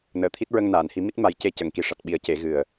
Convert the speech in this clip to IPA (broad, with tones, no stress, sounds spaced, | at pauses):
n əː˨˩˨ t̪ʰ i˦˥ t̚ ɹ ə˧ ŋ n aː˨˩˨ n h i˨˩˦ m i˦˥ t̚ m a˨˩˦ j c e˧ c ə˨˩˨ ŋ k i˨˩ ʂ a˨˩ t̚ ɓ i˨˩˦ ə̯ c e˨˩˦ ɣ ɨ˨˩ ə̯